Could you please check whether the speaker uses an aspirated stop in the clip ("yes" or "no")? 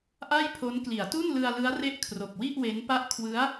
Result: yes